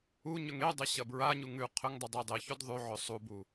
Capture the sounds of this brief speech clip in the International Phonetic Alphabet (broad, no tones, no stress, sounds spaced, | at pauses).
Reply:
u ɲ ɵ ŋ e dˤ e ɕ ɐ b ɹ a ɲ u ŋ ʉ qʰ ɵ ŋ dˤ ɨ dˤ i dˤ e ç o d ðˤ ʉ ʕ ɵ sˤ u b u